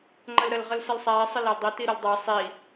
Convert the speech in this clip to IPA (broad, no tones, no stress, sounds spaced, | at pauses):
ŋ͡ǃ ə l ɾ ə l ʁ ə l s ə l sˤ æ sˤ ɪ l æ l dˤ i t i ɾ ɪ l dˤ æ sˤ i